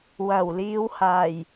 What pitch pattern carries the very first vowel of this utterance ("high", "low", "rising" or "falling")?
low